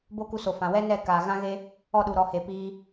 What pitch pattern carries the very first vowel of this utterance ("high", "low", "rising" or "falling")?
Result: high